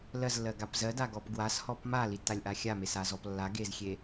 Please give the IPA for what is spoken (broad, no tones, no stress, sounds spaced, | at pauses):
l ɜ z lː ɜ ɡ a p z ɜ d a ɡ ɔ p ɡ w a s h ɔ p m a l i tː a lʲ ʔ a xʲ a m e s a z ɔ p lː a ɡ e z xʲ e